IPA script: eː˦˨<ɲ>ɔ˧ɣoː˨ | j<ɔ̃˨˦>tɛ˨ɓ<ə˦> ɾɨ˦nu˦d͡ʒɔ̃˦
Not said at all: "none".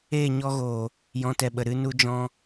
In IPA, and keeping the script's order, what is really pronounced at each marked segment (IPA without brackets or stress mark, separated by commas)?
ɲ, ɔ̃˨˦, ə˨